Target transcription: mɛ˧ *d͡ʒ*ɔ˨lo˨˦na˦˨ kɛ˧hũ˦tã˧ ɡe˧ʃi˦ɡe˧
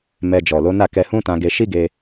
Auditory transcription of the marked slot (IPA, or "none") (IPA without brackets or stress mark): d͡ʒ